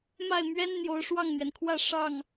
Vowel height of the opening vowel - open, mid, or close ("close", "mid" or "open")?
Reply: open